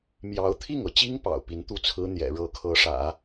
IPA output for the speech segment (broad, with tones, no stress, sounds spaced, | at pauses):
m j ɑ˧˥ ʊ̯ t̪ʰ i˥˩ ŋ ɤ˩ t͡ɕ i˥ ŋ p ɑ̰˨˩ ʊ̯ p i˧˥ n t̪ u˥˩ t͡sʰ ɹ̩˥ n̪ j ɛ̰˨˩ ɻ ɤ˧˥ kʰ ɤ˧˥ ʂ ä̰˨˩˦